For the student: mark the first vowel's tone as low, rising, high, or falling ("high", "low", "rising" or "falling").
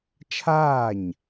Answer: falling